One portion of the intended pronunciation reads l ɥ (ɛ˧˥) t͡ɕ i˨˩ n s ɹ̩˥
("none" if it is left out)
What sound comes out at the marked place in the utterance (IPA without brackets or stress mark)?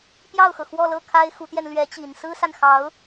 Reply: ɛ˧˥